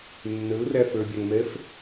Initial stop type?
plain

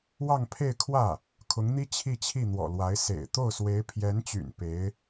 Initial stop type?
aspirated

